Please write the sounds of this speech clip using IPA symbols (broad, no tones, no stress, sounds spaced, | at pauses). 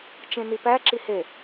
t͡ʃ ẽ n i p æ ǁ i h e